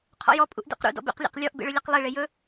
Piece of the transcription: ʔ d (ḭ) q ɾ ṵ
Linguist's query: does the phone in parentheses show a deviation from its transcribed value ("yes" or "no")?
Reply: yes